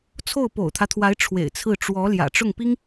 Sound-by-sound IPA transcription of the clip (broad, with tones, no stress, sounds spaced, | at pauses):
t͡sʰ o˥˩ ʊ̯ p o̰˨˩ ʊ̯ t̪ʰ ä˦ t̪ʰ w a˧˥ ɪ̯ ʈ͡ʂʰ w ḛ˨˩ ɪ̯ t͡sʰ ɹ̩˥˩ ʈ͡ʂ w ɔ˧˥ l j ä̰˨˩ ʈ͡ʂ ʊ˥˩ ŋ p i˥ ŋ